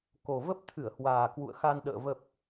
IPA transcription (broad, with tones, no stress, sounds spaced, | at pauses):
k o˨˩ v ə˦˥ p̚ t̪ʰ ɨ˧˩ ə̯ h w aː˨˩ k w ṵ˧˨ ə̯ x a˧ n ɗ ə̰ː˧˨ v ə˨˩ p̚